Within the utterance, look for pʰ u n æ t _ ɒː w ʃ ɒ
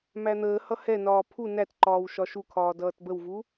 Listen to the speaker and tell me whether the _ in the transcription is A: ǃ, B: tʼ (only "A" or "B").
A